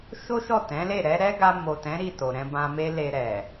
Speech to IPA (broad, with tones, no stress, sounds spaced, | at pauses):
ʃ o˦ ʃ ɔ˦˨ t ɛ̃˨˦ l e˦˨ ɾ ɛ˧ ɾ ɛ˦ ɡ a˧ m o˨ t ɛ̃˨˦ ɾ i˦˨ t o˨ ɾ ɛ̃˧ b ã˧ m e˦ l e˧ ɾ ɛ˨